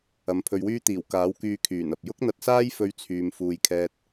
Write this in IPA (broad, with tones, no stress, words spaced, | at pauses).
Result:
ɐ˨˥mpʰɵ˧ɥwyː˥ t̪iː˨˩wkaː˨˥wkyː˧ kʰyː˨˩nɐ˨p̚ jʊ˥k̚n̪ɐ˧t̚saː˥j fɵ˧ɥt͡sʰyː˨m fuː˨jkʰɛː˧t̚